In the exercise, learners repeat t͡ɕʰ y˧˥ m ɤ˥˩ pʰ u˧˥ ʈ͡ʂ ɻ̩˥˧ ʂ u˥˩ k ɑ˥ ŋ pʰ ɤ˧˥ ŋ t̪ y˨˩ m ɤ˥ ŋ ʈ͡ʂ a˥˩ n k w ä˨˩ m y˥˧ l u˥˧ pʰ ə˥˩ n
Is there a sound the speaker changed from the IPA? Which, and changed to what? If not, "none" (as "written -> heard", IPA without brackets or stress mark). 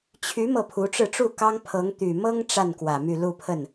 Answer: ʂ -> ʈ͡ʂ